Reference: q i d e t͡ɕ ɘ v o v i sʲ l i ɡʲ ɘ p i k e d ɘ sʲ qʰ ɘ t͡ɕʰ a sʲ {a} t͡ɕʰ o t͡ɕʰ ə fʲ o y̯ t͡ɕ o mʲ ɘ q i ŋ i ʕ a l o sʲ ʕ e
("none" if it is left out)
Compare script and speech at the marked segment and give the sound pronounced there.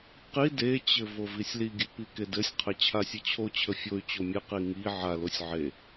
ə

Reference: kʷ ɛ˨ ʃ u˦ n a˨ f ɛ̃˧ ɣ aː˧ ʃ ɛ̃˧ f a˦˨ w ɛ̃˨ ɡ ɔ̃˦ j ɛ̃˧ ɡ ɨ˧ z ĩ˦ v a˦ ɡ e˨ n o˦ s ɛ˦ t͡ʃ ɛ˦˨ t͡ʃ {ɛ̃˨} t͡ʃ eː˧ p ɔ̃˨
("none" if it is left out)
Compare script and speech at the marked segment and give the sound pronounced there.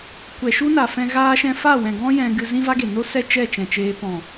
ɛ̃˨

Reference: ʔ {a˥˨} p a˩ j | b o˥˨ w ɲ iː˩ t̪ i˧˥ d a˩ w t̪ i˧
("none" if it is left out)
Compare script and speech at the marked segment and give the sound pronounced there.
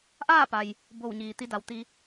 aː˥˨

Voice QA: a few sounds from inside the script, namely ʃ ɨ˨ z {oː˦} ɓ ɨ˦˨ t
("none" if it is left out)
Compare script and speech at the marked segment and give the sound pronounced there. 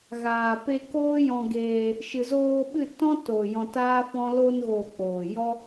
oː˧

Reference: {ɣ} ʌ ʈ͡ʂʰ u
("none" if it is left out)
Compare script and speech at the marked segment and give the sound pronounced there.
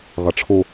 ɣ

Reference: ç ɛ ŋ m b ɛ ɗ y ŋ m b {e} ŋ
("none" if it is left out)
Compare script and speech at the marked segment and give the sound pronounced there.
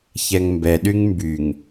y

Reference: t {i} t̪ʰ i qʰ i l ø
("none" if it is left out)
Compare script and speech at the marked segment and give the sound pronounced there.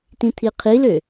ĩ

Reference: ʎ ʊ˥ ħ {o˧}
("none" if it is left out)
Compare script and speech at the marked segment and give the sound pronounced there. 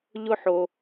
o˧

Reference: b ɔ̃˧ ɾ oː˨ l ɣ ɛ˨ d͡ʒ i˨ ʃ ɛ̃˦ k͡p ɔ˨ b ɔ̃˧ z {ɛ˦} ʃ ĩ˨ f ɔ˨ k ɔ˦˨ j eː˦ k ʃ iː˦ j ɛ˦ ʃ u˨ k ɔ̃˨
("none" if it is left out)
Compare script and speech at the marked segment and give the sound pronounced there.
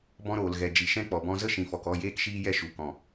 ə˦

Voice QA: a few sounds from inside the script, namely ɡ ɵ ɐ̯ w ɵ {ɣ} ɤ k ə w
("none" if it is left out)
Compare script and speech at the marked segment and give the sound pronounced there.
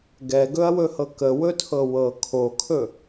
h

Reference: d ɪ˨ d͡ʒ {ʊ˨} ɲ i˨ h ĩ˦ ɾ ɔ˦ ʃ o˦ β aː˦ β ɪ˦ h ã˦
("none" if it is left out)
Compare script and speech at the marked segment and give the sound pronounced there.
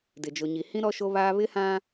ʊ˨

